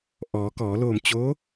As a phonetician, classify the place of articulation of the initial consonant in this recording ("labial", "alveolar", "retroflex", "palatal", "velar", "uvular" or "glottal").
glottal